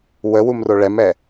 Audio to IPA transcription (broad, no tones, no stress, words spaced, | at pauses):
wəwum roɭɛmɛ